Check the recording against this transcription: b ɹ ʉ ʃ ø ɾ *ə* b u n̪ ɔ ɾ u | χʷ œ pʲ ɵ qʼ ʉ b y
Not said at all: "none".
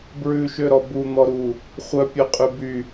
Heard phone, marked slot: ɔ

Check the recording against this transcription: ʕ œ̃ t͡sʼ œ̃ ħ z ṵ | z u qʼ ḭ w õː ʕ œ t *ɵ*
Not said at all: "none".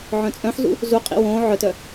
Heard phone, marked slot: œ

